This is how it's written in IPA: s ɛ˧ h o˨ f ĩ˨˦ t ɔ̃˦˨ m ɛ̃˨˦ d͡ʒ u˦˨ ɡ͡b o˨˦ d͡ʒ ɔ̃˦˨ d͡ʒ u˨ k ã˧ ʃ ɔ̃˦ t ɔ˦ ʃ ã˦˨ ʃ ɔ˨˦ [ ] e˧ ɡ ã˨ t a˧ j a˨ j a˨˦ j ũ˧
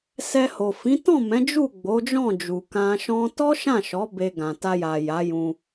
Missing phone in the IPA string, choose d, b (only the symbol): b